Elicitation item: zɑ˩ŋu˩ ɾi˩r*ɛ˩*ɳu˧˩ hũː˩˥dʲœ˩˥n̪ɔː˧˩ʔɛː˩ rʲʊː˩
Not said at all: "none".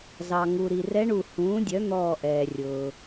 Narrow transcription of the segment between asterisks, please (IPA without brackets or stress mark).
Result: ɛ˧˥